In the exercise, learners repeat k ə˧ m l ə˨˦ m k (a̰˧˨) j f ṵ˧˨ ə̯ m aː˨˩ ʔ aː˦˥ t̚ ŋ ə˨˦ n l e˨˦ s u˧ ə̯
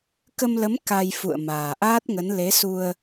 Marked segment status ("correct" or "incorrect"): incorrect